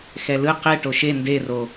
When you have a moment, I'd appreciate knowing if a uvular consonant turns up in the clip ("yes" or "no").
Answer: yes